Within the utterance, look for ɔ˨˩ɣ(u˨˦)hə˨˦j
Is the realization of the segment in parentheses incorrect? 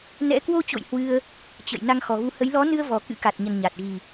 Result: no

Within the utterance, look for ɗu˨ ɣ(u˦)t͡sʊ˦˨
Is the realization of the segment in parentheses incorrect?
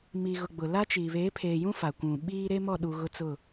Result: yes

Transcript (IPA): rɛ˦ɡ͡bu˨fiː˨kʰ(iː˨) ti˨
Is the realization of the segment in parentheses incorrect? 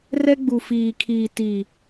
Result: no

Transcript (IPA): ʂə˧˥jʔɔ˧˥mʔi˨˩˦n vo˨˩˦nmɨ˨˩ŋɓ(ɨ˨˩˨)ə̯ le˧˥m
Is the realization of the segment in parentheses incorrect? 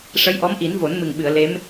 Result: no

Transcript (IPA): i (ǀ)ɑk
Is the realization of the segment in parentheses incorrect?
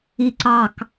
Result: no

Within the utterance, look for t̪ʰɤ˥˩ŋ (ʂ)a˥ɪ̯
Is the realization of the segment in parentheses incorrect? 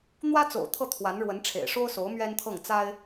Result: yes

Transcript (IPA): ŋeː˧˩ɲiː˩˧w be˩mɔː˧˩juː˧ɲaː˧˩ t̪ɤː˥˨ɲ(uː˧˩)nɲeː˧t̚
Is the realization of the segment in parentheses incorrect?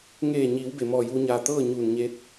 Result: no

